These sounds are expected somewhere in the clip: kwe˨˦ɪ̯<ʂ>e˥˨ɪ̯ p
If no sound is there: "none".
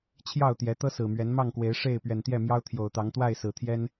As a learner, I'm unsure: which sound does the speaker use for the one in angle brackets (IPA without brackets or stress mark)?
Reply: ʂ